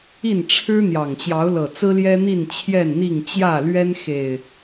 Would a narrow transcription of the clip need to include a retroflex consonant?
yes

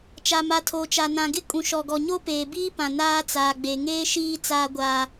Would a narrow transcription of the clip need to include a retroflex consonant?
no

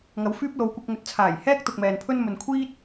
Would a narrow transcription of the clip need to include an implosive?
no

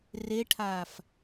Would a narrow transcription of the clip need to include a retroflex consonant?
yes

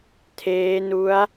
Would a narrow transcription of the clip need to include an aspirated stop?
yes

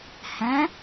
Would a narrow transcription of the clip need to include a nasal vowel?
yes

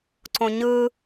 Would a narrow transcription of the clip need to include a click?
yes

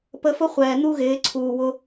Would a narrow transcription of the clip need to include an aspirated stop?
yes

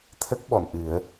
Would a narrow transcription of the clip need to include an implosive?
yes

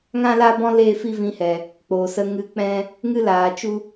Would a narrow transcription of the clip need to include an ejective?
no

